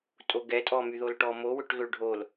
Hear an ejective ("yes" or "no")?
yes